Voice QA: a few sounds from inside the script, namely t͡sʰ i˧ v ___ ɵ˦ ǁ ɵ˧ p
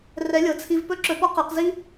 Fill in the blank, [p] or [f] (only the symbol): p